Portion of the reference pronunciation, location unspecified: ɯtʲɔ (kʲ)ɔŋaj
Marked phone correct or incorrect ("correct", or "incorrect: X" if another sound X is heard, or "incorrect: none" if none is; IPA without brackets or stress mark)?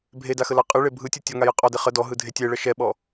incorrect: tʲ